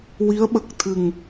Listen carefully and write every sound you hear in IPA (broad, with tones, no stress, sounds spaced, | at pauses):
w i˧˥ ə̯ ɓ ə˨˩ k̚ t̪ʰ ɨ˨˩ ŋ